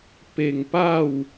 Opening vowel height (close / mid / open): mid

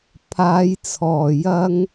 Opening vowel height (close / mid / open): open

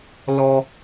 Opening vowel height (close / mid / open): mid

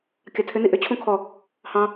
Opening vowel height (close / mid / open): open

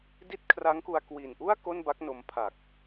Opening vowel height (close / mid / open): close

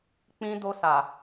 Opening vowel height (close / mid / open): close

